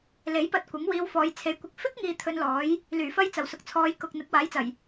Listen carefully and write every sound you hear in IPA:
l e˨˥ j p ɐ˧ t̚ kʷ ɪ˨˥ ŋ w iː˧ w f ɔː˨˧ j t͡sʰ e˨˥ j kʷ ɪ˨ k̚ f ɪ˥ k̚ ŋ iː˨ t̪ʰ ɵ˧ n l ɔː˨˥ j | l yː˨˩ f ɐ˥ j t͡s ɐ˨˩ w s ʊ˨ k̚ t͡sʰ ɔː˨˧ j k ʊ˨ k̚ n̪ ɪ˨˥ k̚ w aː˨˥ j t͡s ɐ˨˩ j

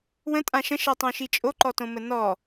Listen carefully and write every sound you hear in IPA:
w ə̃ tʼ ã ʃ ə̃ ʃ ɤ tˤ õ ʃ i t͡ʃʼ o ǃ ɔ t õ m ə n ɔ

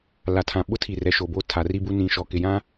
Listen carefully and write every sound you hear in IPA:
l a˨ tʰ ã˨ ɓ ʊ˦ tʰ i˨ r ɛ˨ ʃ o˨ b oː˦ tʰ a˨˦ r i˦ b u˦ n ĩ˨ ʃ ɔ˨ k ɪ˨ j ã˦

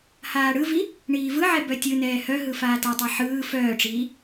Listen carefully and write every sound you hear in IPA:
h aː ɽ ɯ v i | ɳ iː v ɯ ʕ ɛ b œ tʲ ɯ n ɛː h œ ɦ ɯ f aː t a tˤ a ħ ɯː f œː ʈ͡ʂ iː

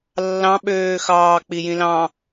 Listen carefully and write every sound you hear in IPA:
lː ɑ̃ ɓ øː x ɑː k͡p i j ĩ l ɑ̃

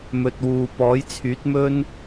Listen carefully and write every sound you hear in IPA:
m ɵ˨ t̚ w uː˨ p ɔː˨˥ j t͡sʰ yː˨˥ t̚ m ɵ˥ n

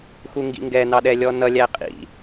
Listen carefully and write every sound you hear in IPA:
x u ŋ ɡ ḭ ŋ ɡ ɛ n ɑ ɗ ɛ lʲ ɔ n ʌ lʲ æ qʼ ḭ

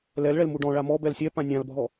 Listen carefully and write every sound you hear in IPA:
l ɛ l ɭ ɛ l m u ɖ ɔ̃ ɭ a m ɔ b ɛ l sʲ ɛ p ã nʲ ã l bʱ ɔ

